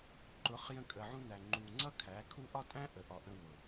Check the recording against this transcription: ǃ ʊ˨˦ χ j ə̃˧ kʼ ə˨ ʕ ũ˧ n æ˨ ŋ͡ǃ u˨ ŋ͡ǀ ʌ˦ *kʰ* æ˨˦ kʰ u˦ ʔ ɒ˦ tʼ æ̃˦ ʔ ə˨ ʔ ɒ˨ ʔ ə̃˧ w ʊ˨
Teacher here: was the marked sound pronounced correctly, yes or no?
yes